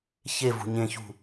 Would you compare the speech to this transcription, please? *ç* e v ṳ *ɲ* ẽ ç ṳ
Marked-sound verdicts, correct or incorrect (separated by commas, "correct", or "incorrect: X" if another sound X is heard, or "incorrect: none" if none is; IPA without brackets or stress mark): correct, correct